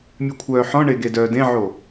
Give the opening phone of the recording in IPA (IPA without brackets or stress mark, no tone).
mʲ